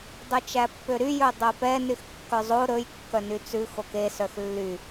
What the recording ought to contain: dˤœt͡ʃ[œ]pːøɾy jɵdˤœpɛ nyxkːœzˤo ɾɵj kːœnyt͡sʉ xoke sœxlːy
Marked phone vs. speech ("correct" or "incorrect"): incorrect